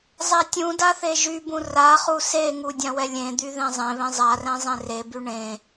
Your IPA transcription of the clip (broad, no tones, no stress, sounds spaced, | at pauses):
zˤ ɛ tʲ ũ d a θ e ʒ y b ũ r a χ u s e ŋ u dʲ ã w ɛ lʲ ẽ d̪ y ð ẽ zˤ ẽ β ẽ zˤ a r ɛ̃ zˤ ẽ r e b y ɳ ẽ